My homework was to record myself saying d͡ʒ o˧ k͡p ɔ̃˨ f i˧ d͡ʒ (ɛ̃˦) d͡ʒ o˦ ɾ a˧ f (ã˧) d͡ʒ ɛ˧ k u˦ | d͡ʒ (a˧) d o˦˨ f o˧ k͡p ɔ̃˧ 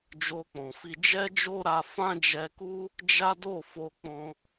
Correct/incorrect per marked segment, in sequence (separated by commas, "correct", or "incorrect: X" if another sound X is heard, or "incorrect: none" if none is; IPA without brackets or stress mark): incorrect: ɛ˦, incorrect: ã˦, incorrect: a˦